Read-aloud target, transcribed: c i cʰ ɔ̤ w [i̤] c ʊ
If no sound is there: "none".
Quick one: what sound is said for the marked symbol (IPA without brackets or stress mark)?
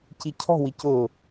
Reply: i